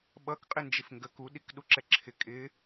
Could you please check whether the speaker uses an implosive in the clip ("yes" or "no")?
yes